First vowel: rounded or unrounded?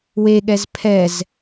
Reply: unrounded